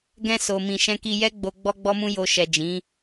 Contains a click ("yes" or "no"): no